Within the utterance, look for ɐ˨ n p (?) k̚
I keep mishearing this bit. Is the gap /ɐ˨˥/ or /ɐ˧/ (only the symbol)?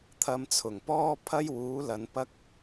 ɐ˧